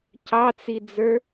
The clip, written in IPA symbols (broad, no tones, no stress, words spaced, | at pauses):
cɑt͡sid͡zə˞